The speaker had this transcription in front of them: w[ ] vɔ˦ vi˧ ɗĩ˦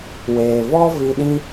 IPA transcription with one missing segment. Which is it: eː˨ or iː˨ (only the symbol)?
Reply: eː˨